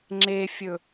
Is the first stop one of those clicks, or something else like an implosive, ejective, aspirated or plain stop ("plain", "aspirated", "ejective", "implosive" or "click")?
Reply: click